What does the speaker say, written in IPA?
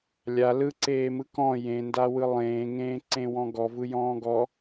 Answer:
lʲa lɯǀeːmɯ kɔ̃ jẽndawɯ lˠẽːŋẽːǀẽ wɔ̃ɡɔvɯjɔ̃ː ɡɔ

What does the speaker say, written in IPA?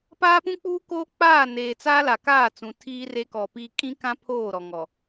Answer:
paː˦pũ˦k͡puː˦koː˦ k͡paː˦˨neː˨t͡saː˦ la˨kaː˦˨t͡sũ˨ tʰiː˦re˦kɔ˨piː˦ kʼĩ˦kã˦ pʰoː˦˨ɾɔ˨ŋɔ˨

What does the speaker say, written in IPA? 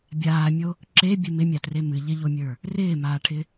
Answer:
bʲaːmʲo | ǁebʲɨ mɪmʲatre mɨ ʎɪʎomʲə˞ | rɪːmaːʈʰɪ

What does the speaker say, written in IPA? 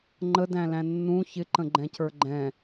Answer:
ŋ͡ǃədæ̃læ̃ nːũ çɪǃə̃ɡ͡ǃɛ̃cə˞ ɡ͡ǃɛ̃

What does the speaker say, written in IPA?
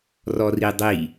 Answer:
rɔridˤi

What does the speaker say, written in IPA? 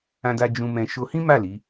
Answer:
ã˧da˧ d͡ʒũ˧mɛ̃˧ ʃo˧hĩ˦ma˦˨ li˨˦

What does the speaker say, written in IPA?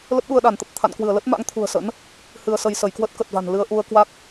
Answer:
lə˦˥p̚ɗu˧ə̯ɗa˧˩nt̪ə˨˩p̚ t̪ʰa̰˧˨nkwɨ˧˩ə̯lə˦˥t̚ ma̰˧˥ŋt̪ʰṳ˨˩ə̯sə̰˧˥n | hɨ˧ə̯sə˧j sə˧˩jkwə˦˥t̚kə˨˩t̚va̤˨˩n lɨ˧ə̯ʔu˧ə̯kwa˦˥k̚

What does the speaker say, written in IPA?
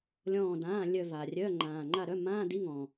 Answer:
lʲɔ̃ː˦˨dãː˧˥˧ lʲœ˦˨va˨˩rʲœː˧˥˧ ŋ͡ǃãː˨˩ŋ͡ǃa˦˨ɾœ˧˥˧ mãː˧˥˧di˧˥˧ŋɔ̃˨˩

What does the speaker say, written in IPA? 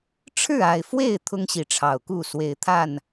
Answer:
ʈ͡ʂʰɻ̩˥˨a˨˩ɪ̯fwe˥˨ɪ̯ t̪ʰʊ˦ŋɕi˨˦ʈ͡ʂʰɑ˨˩ʊ̯ku˥˨ swe˨˩ɪ̯t̪ʰa˥˨n

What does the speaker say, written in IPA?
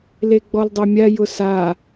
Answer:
leɡ͡bɔldˤɛmʲa jʊsa

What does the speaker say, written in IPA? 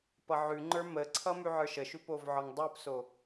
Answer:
pʌʕʉŋ͡ǃə˞ məǀʰʌ mʉʕə˞ʃəʃʉ povʕɒŋdˤə˞pso

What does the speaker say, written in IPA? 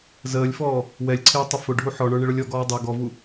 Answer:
zəːlʲfɔː | wɛlʲǀʰɪː tˤɪfʊɖʱu ħɔɳə˞ ɳɪɭʊlʲɔɡɔː dˤɛ ɡɔvu

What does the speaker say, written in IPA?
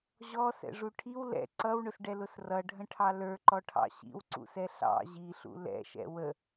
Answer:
ʑɔsɛ̰ʐu ʈʰiw lɛ̰ ǀʌwɳʊsɖɛlʊs rʌɖʱə̃ʈʰɑ lə˞ǃɔʈʰɑ̰ ɕḭwǀṵsɛ ɬɑ̰ ʑiɬṵ lɛ̰ʃɛ̰ wə

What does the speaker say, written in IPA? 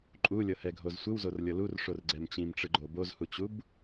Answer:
ǃʼulʲɤhɛɡʱoz sʷɯwzorlʲɤ lurʂorɡ͡ǀɛm t͡ɕĩmʈ͡ʂɯɡ͡ǃo bozhut͡ɕub

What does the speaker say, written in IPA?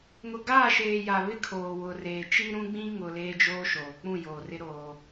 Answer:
ŋʊ˨ɡaː˦˨ʃeː˨ ja˨βɪ˦kʰoː˨ wʊ˨reː˨t͡ʃi˦ ɾũ˦ɡ͡bĩ˦ŋʊ˨ leː˦d͡ʒoː˦ʃoː˨ k͡pũ˦˨joː˨rɪ˦ ɾoː˦

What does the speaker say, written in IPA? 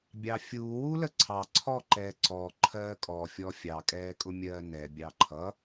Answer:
bʲɑfʲuːwu ləǀʰɑ ǀʰɔǃɛː ǀɔ ǃʰɜːkʼɔfʲɔ fʲɑkʼɛː kʼʊmʲɜːnɛ bʲɑǃʰʌ

